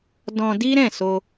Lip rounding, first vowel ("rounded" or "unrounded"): rounded